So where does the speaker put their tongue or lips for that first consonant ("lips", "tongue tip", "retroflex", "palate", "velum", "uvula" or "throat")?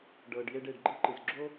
retroflex